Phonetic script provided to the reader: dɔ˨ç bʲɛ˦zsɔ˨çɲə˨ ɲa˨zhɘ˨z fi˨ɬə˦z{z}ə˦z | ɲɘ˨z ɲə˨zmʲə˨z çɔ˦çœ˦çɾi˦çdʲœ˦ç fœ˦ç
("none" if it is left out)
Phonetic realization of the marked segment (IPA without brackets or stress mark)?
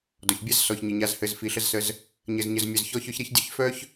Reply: s